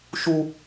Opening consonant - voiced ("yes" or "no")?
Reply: no